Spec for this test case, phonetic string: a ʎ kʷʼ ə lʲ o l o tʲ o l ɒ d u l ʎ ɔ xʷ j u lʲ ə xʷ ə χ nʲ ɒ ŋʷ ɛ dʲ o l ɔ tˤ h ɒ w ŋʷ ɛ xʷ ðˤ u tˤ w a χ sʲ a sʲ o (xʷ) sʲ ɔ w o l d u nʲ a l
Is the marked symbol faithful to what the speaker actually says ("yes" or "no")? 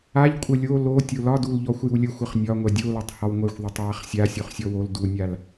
no